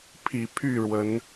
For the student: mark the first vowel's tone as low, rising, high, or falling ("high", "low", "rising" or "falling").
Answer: low